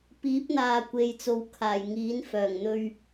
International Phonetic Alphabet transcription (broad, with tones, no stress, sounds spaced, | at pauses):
p iː˨˥ p̚ n̪ aː˨ kʷ e˨ j t͡s o˨˧ w kʰ aː˨˩ j ŋ iː˨˥ n f œː˨˩ ŋ n̪ ɵ˧ ɥ